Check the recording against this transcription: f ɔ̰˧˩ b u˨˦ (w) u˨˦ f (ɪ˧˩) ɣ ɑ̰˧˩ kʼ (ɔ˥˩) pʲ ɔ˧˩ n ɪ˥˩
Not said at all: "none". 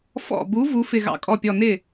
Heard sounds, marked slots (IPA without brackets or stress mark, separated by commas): v, ɪ˧˩, ɔ˧˩